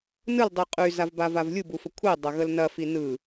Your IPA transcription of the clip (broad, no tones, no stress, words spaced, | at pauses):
nɯl dˤiqʼy zavbavavlʲu bufəkʷʰi dˤɐɣəlnɐ finɯ